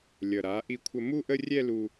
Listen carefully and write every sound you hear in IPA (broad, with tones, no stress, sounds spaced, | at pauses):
lʲ ʌ˨˩ ɾ a˩˥ ʔ i˧ kʷʰ ə˧ m u˥˧ ʔ ə˥˧ rʲ ɛ˥˧ l u˧